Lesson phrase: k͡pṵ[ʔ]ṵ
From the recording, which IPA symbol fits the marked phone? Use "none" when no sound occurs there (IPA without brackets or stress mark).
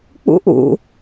ʔ